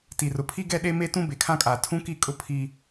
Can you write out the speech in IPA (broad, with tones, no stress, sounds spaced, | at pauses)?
t i˨ r ʊ˨ pʰ i˦ ɡ ɛ˦ ɗ e˦ m e˦ t ũ˦ b e˨ kʰ ã˦ kʼ aː˨ tʰ ũ˦ k i˦˨ kʼ ʊ˦ pʰ i˦